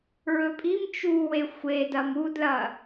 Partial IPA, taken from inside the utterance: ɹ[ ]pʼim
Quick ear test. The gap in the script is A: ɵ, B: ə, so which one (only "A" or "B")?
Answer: A